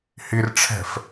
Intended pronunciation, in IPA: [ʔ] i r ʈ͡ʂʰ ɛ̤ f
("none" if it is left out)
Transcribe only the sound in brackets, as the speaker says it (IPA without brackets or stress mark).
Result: h